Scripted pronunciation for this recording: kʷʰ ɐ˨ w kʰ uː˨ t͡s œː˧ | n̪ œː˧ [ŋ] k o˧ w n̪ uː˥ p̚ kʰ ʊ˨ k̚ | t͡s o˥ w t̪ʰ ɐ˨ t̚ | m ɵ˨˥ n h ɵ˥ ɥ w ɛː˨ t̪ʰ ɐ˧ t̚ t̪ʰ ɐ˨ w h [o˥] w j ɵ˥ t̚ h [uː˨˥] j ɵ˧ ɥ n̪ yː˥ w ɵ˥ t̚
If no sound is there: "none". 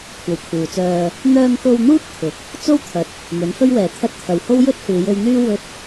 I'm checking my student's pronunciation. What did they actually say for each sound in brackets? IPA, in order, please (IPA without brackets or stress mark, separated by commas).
ŋ, o˥, uː˨˧